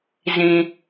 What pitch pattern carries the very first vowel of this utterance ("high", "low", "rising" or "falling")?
low